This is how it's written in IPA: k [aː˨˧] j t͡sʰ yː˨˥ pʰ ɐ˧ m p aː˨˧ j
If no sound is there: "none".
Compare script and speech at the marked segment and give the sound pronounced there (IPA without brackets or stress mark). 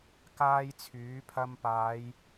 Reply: aː˥